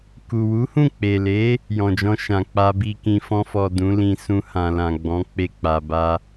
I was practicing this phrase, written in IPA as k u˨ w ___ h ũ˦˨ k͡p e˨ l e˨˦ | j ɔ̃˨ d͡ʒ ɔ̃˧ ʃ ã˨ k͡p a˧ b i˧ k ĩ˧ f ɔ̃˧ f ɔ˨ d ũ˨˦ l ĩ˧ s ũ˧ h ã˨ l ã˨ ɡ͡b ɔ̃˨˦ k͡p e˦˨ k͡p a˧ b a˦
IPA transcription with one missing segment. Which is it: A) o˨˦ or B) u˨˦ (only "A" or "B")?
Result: B